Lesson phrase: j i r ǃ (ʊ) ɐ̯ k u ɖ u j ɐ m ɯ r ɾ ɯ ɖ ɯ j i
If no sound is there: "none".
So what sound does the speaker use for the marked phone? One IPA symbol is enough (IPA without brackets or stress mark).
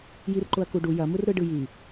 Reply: ʊ